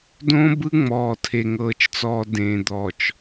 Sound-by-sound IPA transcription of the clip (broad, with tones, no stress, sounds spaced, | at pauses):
d õ˦ b ɯ˦ ŋ͡m ɔː˨ tʰ e˨ ŋ ɤː˨ t͡ʃ t͡s ɔː˨ d ẽː˨ d̪ ɔː˨ t͡ʃ